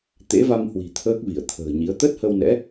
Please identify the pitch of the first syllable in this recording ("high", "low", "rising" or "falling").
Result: rising